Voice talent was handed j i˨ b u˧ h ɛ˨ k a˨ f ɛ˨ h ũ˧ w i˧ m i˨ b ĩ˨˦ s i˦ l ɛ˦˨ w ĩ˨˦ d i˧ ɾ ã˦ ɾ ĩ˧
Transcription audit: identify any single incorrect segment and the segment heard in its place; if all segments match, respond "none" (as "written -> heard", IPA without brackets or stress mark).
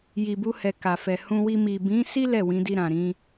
ã˦ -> ã˨